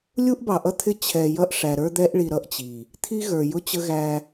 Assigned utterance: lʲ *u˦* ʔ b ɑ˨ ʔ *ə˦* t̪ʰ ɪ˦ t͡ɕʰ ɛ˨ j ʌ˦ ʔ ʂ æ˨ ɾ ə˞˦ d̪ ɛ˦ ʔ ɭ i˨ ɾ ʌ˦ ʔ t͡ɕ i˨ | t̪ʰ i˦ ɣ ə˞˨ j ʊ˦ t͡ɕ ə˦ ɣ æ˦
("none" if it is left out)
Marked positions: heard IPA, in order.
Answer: u˦, ʌ˦

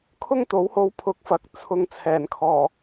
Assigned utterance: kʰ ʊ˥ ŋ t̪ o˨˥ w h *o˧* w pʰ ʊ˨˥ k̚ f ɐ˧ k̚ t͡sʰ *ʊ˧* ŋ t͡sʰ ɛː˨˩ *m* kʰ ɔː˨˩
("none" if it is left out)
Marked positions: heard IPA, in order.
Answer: o˧, ʊ˧, n

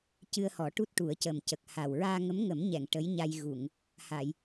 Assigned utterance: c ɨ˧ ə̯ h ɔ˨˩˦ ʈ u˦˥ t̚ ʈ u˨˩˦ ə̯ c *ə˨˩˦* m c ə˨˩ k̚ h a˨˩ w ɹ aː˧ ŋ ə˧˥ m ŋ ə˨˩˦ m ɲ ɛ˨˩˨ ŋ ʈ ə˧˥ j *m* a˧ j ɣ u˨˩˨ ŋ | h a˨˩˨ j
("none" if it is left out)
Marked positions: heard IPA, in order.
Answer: ə˨˩, ɲ

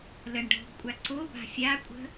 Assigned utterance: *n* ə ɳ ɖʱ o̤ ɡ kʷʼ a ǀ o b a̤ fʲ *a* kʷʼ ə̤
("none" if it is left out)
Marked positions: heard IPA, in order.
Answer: l, a

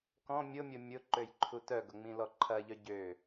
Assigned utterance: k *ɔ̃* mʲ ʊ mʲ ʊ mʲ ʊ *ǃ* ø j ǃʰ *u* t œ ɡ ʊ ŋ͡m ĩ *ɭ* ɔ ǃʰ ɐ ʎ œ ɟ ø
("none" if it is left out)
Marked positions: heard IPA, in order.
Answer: ɔ̃, ǃ, u, l

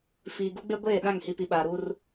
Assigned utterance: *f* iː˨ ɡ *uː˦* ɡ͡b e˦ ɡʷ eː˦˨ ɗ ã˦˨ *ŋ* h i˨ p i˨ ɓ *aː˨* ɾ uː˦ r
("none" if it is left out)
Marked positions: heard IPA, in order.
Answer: f, u˦, ŋ, aː˨

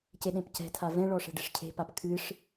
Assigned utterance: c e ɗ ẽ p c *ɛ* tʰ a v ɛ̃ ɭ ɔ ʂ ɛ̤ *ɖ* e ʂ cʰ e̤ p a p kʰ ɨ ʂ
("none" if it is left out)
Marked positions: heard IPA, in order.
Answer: ɛ̤, ɖ

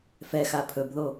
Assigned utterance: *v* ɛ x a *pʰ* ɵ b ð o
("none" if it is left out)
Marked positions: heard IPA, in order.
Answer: f, pʰ

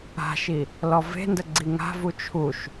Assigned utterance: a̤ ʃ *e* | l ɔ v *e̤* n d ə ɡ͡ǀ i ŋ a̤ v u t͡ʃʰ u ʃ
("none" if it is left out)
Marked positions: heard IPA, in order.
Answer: i, e̤

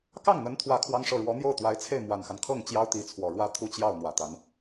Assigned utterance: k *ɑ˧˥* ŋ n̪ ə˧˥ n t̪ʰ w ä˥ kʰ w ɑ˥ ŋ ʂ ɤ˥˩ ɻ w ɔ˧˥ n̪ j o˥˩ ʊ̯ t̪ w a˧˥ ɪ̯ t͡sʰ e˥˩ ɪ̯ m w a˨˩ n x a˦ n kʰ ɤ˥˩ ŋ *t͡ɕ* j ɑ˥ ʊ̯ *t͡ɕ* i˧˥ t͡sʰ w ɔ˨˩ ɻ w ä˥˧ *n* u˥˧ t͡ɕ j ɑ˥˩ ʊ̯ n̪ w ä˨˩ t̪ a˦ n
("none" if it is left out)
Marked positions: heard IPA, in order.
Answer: ɑ˥˩, t͡ɕ, t̪, t̪ʰ

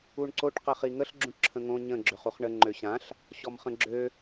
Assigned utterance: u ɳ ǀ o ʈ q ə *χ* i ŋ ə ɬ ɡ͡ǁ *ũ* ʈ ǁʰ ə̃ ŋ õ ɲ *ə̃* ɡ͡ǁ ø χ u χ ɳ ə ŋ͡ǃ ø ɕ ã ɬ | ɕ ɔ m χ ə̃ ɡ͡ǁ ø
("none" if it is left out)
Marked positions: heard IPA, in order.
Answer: χ, ũ, ə̃

